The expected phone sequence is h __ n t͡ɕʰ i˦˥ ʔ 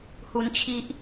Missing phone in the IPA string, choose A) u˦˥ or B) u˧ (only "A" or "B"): A